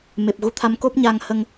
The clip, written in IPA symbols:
m e˨˩ p̚ ɣ u˧˥ t̪ʰ a˧˥ m k o˦˥ p̚ ɲ a˧ ŋ h ə˧ ŋ

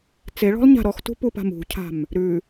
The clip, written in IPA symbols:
t͡s e ɭ ɔ̤ lˠ ɲ a̤ ɾ ɔ x t ṳ p u p a̤ m ṳ cʰ a̤ m | ɾ ʉ

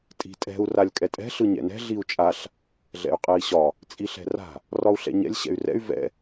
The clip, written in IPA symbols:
tʼ i̤ tʼ ɛ̤ u̯ r a lʲ kʼ ɛ tʼ ɛ̤ ɬ ɯ ɲ ɛ̰ n ɛ̤ ɮ i u̯ t͡ʃʼ a ɬ | ɮ ɛ̰ y̯ qʼ ɛ i̯ ɕ ɒ | t͡sʼ i ɬ ɛ̤ r a̤ | r ɒ u̯ ɬ ɛ̰ ɲ ɛ̰ lʲ ɕ ɛ̰ y̯ r ɛ̰ y̯ v ɛ̰

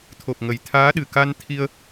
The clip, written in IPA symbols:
t̪ʰ o˨˩ p̚ ŋ ə˨˩ j t̪ʰ aː˨˦ ɗ ɨ˨˩ k a˧ n t̪ʰ i˧ ə̯

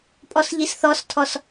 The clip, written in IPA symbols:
pʼ ɔ s ʎ i s θ ɔ s tʰ ɔ s

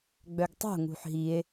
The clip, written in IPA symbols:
ɡ͡b œ ɡ tˤ o̤ ŋ ṳ ħ ɦ i e̯

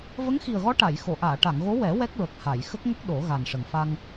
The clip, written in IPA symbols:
v ə˧˥ ŋ x i˨˩ ə̯ ɣ ɔ˧˥ ʈ a˨˩˨ j x o˨˩˨ ʔ aː˨˩˨ ʈ a˨˩˨ ŋ ɣ o˧˥ w ɛ˨˩˦ w ɛ˦˥ k̚ ɹ ə˨˩ k̚ h a˨˩˨ j x ə˦˥ k̚ ŋ ə˦˥ k̚ ɗ o˨˩˦ ɣ a˨˩ n ʂ ə˨˩ ŋ f a˧ ŋ

